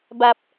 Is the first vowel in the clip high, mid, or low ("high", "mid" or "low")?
low